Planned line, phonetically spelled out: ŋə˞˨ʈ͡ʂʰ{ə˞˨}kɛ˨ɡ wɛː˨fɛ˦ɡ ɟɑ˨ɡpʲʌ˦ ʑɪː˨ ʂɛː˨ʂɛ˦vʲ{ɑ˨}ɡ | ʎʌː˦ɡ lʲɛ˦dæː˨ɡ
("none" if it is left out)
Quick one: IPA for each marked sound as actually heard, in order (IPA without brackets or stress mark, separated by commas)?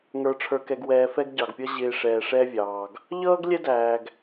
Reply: ə˞˨, ɑː˨